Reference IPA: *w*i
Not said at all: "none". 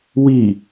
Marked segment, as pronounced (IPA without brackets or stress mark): w